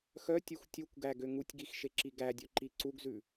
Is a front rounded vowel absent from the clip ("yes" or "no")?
no